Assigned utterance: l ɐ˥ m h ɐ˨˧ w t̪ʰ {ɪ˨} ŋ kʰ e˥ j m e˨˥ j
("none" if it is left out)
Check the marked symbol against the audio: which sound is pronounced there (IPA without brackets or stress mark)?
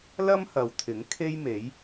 ɪ˨˥